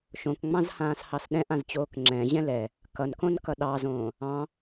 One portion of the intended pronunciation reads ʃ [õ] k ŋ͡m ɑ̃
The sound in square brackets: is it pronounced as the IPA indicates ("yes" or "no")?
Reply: yes